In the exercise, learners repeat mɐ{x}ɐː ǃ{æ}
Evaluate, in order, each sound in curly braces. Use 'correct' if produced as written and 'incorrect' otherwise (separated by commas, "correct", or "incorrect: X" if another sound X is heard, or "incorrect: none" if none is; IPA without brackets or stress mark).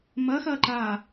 correct, incorrect: a